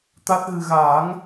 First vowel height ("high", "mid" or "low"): low